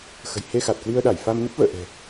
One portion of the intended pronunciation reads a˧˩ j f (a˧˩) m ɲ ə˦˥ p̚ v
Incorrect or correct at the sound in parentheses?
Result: incorrect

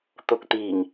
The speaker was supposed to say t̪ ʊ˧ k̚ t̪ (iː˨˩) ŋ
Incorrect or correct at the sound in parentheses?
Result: correct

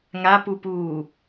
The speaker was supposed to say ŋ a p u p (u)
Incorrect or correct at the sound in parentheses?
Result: incorrect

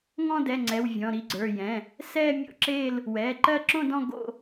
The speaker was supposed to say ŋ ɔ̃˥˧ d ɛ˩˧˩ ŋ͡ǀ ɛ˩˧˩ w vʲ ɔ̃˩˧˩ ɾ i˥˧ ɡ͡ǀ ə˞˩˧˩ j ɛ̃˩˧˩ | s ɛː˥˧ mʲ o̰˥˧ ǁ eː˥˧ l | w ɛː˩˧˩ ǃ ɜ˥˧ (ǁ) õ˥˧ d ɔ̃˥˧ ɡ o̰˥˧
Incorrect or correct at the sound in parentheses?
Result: correct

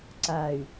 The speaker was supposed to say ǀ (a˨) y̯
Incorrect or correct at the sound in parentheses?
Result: correct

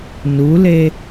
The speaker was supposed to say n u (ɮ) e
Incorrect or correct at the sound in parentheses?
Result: incorrect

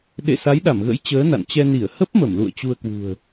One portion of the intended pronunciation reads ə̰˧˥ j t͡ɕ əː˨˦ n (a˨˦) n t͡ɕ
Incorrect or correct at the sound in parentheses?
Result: incorrect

